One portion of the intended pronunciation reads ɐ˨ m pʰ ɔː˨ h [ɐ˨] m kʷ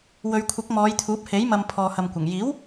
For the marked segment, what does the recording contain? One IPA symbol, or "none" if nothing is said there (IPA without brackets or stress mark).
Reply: ɐ˨